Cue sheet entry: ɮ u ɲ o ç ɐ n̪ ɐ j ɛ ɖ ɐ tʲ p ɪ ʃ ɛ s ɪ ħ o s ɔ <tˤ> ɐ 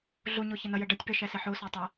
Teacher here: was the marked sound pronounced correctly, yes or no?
yes